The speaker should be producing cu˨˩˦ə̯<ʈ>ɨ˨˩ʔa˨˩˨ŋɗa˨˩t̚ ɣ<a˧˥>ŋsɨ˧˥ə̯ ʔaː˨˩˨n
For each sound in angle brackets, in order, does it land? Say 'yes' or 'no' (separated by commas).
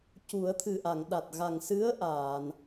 no, no